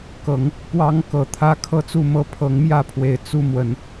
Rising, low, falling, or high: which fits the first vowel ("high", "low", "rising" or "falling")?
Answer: rising